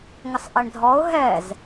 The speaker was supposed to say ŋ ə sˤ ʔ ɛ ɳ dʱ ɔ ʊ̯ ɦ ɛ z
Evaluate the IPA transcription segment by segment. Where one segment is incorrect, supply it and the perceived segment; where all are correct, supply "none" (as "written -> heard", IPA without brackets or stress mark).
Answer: none